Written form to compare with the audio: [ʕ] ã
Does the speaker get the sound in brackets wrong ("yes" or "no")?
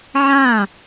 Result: no